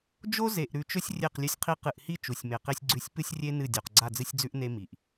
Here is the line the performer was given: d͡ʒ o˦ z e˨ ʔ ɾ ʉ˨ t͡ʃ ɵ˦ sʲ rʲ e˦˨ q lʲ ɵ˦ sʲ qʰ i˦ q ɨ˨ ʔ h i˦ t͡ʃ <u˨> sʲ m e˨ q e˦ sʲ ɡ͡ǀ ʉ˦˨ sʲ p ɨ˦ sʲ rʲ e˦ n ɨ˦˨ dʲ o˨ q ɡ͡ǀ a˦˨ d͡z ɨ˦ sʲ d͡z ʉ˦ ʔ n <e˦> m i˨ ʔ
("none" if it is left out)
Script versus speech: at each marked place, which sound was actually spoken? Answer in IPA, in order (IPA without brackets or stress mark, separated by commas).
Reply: u˨, e˦